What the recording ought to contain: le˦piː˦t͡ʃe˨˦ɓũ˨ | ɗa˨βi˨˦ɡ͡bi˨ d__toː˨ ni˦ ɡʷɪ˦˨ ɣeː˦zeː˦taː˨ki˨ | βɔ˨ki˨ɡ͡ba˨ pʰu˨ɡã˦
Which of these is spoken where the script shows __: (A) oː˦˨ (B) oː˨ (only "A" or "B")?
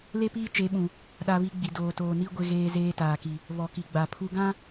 B